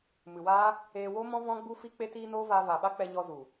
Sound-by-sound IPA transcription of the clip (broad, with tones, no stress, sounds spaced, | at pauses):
m ɨ˨ w aː˦ | eː˧ w o˦ m ɔ̃˦ v ɔ̃˦ ɡ͡b u˦ f i˦ k͡p e˧ t iː˧ n oː˦ v aː˧ v a˨ ɓ a˦ k͡p ɛ˧ ɲ ɔ˧ z u˨